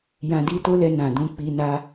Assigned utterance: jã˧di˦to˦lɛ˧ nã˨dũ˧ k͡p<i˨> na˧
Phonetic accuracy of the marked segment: incorrect: i˧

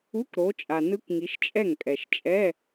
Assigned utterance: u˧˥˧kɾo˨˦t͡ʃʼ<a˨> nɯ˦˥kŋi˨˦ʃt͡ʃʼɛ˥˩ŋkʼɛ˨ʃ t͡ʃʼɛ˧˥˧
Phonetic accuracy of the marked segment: correct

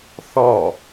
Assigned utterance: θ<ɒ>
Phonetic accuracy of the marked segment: correct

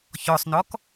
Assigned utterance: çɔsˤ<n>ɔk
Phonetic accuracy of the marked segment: correct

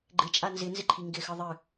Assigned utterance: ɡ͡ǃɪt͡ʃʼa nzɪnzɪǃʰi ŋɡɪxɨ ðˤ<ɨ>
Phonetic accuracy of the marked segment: correct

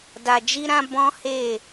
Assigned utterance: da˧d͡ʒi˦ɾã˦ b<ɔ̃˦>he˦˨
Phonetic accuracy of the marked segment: correct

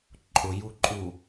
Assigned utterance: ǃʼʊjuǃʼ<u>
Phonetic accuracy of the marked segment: correct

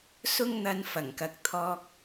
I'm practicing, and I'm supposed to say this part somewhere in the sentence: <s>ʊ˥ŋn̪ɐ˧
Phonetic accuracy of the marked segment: correct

